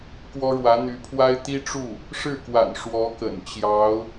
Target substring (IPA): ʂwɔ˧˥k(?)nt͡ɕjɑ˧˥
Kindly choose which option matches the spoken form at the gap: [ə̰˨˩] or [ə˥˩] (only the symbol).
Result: ə̰˨˩